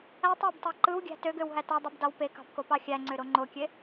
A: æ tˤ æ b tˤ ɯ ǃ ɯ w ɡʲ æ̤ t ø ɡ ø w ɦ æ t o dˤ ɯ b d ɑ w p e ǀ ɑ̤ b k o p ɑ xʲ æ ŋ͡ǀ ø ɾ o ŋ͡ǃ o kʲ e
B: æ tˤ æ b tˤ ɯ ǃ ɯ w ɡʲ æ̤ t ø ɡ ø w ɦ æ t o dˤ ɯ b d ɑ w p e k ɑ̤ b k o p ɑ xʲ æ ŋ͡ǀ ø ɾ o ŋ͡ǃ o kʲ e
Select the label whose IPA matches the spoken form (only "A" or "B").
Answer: B